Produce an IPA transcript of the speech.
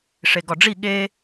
ʂ e ɡ ɒ ɖ͡ʐ i ɠ e

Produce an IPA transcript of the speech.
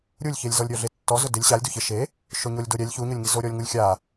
ɾʲ u lʲ ç e lʲ z ɔ lʲ ɾʲ ɔ ɮ e tː ɔ z ʊ d ɪ lʲ ɕ a lʲ d u ç ɪ ʃ e | ʃ ʊ ɲ o lʲ d o ɾʲ ɛ lʲ ç u ɲ ʊ lʲ ŋ i z o ɾʲ ɔ lʲ ŋ u lʲ xʲ a

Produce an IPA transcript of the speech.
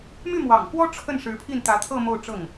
m y˥˩ m w ɑ̰˨˩ ŋ k w ɔ˥ ʈ͡ʂʰ ə˥˩ n ʂ ɻ̩˧˥ pʰ i˥˩ n t̪ ä˧˥ t̪ʰ ɤ˥˧ m o˥˧ ʊ̯ ʈ͡ʂ ɤ˥˩ ŋ

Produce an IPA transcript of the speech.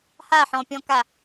h a ħ ɔ̃ pʲ ɔ̃ k a

